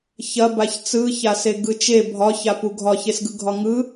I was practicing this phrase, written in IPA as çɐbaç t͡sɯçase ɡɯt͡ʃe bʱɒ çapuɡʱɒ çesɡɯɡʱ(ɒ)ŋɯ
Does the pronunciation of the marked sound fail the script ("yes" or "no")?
no